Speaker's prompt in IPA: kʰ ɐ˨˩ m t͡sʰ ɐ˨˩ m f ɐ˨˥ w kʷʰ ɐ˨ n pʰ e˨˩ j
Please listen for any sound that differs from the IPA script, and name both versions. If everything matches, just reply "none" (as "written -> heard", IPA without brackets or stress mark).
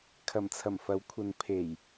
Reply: none